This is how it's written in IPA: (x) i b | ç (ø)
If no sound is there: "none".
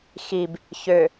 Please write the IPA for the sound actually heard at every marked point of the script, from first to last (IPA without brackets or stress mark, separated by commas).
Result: x, ø